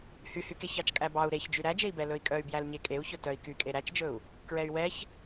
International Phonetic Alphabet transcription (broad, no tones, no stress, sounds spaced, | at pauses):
h y h y k e ç ɑ t͡ʃ kʼ æ b ɑ u̯ ɾ e ç d͡ʒ y ɾ æ d͡ʒ e i̯ b ɛ l ɵ i̯ kʼ œ y̯ b j æ l ɲ e kʼ e u̯ ç ɵ t œ i̯ k y kʼ e ɾ æ t͡ʃ d͡ʒ ɵ u̯ | k ɹ ɛ y̯ w ɛ ç